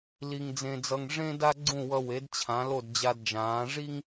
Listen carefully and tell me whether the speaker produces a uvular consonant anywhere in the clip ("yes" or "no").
no